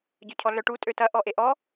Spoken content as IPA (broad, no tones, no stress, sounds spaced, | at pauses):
ɟ œ cʰ ɔ ɮ œ ʈ u tʼ ø t ɐ ʔ ɔ ʔ e ʔ ɔ